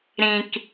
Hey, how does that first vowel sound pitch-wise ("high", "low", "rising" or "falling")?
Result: low